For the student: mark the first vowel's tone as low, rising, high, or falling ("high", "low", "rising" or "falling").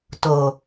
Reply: low